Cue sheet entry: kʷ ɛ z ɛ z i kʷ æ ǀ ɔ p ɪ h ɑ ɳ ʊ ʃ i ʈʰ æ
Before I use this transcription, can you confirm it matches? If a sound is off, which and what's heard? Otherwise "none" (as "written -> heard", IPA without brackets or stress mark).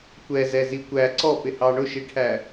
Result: none